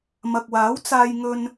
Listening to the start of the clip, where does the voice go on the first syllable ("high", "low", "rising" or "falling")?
low